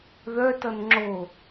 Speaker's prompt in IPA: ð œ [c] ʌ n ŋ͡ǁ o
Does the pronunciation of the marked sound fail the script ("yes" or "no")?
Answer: yes